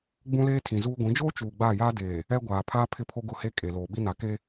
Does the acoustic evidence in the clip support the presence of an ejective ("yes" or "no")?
yes